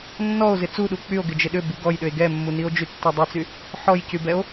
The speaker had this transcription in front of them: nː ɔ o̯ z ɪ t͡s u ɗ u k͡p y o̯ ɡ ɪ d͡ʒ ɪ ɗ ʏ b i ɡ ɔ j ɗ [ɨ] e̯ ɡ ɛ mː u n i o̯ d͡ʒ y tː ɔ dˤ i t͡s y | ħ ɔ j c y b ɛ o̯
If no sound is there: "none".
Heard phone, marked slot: ʏ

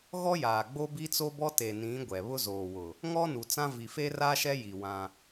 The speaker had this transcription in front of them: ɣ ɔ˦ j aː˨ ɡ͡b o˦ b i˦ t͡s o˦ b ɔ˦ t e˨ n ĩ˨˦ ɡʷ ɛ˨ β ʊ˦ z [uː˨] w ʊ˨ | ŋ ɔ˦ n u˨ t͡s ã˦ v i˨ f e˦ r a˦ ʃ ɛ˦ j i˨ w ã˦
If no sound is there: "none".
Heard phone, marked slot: oː˨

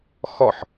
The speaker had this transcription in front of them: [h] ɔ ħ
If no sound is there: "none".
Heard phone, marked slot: x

